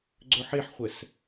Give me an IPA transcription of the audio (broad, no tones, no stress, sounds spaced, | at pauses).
ɡ͡ǀ ɵ ħ e ħ χʷ ɛ s